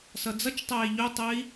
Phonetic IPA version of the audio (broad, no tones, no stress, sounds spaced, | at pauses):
s ʌ d͡z ʌ t͡ʃ tˤ æː i̯ ʎ o tˤ ə i̯